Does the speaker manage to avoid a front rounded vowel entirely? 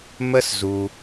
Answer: yes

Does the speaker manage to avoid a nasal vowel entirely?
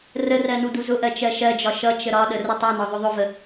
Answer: yes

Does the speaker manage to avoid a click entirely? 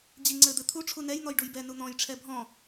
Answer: no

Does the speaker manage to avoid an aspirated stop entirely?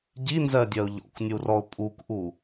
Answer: yes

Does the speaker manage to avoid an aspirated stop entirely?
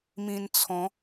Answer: no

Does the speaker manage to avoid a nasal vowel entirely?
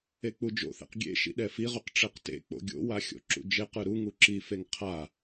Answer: yes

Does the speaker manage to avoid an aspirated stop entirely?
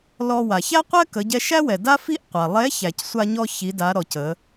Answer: yes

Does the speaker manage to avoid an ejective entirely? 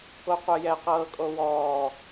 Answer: no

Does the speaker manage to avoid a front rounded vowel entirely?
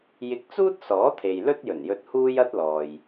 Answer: yes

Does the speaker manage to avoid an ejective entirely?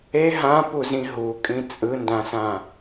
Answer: no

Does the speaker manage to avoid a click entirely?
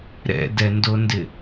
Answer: yes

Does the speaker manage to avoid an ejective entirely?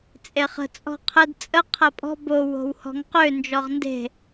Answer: no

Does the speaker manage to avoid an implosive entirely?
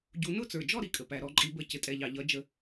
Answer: yes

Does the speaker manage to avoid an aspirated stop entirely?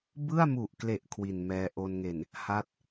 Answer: no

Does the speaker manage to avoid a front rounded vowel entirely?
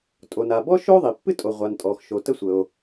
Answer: yes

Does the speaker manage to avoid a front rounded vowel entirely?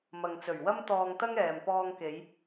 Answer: yes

